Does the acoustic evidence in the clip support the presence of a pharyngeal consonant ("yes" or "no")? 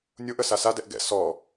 no